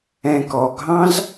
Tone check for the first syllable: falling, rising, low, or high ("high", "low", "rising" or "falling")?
low